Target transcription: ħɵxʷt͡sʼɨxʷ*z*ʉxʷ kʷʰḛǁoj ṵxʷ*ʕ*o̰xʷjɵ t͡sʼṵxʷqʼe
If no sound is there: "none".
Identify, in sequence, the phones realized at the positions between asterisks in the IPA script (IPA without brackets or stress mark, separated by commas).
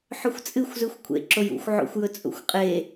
z, ʕ